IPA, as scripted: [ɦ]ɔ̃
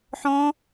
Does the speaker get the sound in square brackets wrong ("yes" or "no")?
yes